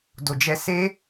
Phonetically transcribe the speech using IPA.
d o˧ d͡ʒ ɛ˦ s e˦

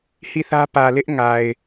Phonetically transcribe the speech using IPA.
h i˦˨ θ ä˦ p ä˨ l ɪ˦ ʔ ŋ a˨ ɪ̯

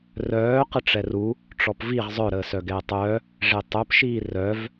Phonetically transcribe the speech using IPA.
r œː q ə ʈ͡ʂ ɛ r u | ʈ͡ʂ ɔ p v i ʁ zˤ œ ɾ əː s œ ɡ ɛː tˤ œː | ʐ e tˤ œ p ʃ iː r œ v

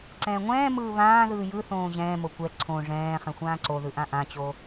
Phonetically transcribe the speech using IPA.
ǀ ɛ̃ː ŋʷ ɛ̃ː m ɯː β ãː ð ɯː j ɯ θ õː ʑ ɛ̃ː m o kʷ ɛ ǀʰ õ ʐ ɛ̃ː χ ɛ̃ xʷ ãː ǀ o ð ɯ ʔ ã ʔ ã t͡ɕ o

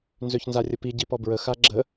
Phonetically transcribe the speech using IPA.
n z ø ç n z a rʲ ə p i ɟ i p ɔ b ɹ ə x a ɡ͡ǁ ə

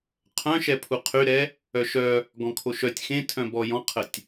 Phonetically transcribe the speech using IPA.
qʰ œ̃ ʃ ɛ pʰ u qʰ y ɾ ɛ | œ ʃ œ | ɡ ɔ̃ kʰ o ʃ œ tʲ x ẽ tʰ œ̃ b ɔ j ɔ̃ qʰ ə tʲ

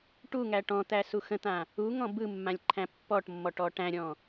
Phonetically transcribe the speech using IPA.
ʈ u ŋ æ ʈ ɔ̃ t̪ æ s u x ə̃ t̪ ã | u ŋ ɔ̃ b ɯ mː ã lʲ ǃʰ æ̃ pː ɔ ʈ mː ɔ ʈ ɔ ʈ æ̃ ɾʲ ɔ̃

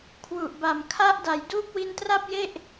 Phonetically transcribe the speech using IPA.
kʰ w u˨˩ ʔ b a˨˩ m kʰ a˦˥ ʔ d a˩˦ j d uː˦˥ p̚ w i˧ n t r a˥˩ p̚ j e˥˩ ʔ

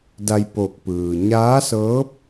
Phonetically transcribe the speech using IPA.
d a˧ j p o˧˩ k̚ p ɯː˩ ɲ aː˧˥ s ɤː˧˥ p̚

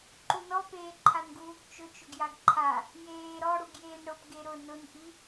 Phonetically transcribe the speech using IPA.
ǃ u n ɔ p eː ǃʰ a n ɡ uː ɡ t͡ʃ ʊ t͡ʃ ʊ ɡ j a ɡ ǃʰ a | j eː ɾ ɔ ɽ u ɡ j eː n ɽ ʊ p ɡ e ɾ ʊ n ʊ n ʔ i

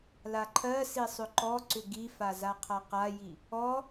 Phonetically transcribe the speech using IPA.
l a ǃʰ ɜ s i sˤ ʏ ǃ ɔ ǀ ʏ ɡ i f a z a qʰ a q a j i | ɔ

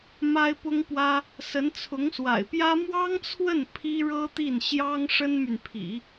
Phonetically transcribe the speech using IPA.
m a˥ ɪ̯ p ʊ˥ ŋ p w ä˥ | s ə˧˥ n t͡sʰ ʊ˧˥ ŋ s w a̰˨˩ ɪ̯ p j ä˥ m w ɑ˥ ŋ t͡sʰ w ə˥˩ n pʰ i˥ ɻ ɤ˥ t̪ i˥˩ n ɕ j ɑ˥ ŋ ʂ ə˥ n m y˨ n pʰ ḭ˨˩˦

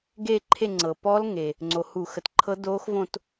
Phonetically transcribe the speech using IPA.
ɡ e˥˧ ǃʰ e˥˧ ŋ͡ǀ ɤ˩ p ɔ˦˥ l ŋ e˩ | ŋ͡ǀ o˩ h u˧˩˧ x ə˩ t ǃʰ ɤ˦˥ d oː˦˥ x v õ˥˧ t

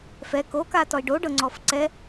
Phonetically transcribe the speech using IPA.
f ɛ k o k a t ɔ i̯ ɖ o ɖ ɤ ŋ͡ǀ ɔ f ǀ ɛ

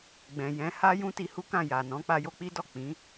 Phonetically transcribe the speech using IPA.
ɡ͡b ɛ̃˨ j ɛ̃˨˦ h a˦ j ũ˦ t i˧ h u˦ k ã˦˨ j a˨ n ɔ̃˨˦ k͡p a˧ j o˧ k͡p i˦ d ɔ˦˨ k͡p ĩ˨˦

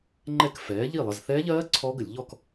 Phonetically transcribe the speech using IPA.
ŋ͡ǃ ɛ˥˨ k f ɛː˨˥ ʎ i˥˨ lˠ ə˧˥˧ z θ ɛː˦˥ ʎ ɜː˦˥ ǀʰ ɔː˦˥ ɡ ə˧˩˧ lʲ ʎ ɔ˥˨ k

